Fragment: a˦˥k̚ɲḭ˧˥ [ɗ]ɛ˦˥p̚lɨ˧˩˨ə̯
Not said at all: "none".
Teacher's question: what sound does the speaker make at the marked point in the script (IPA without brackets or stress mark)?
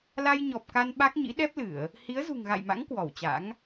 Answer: ɗ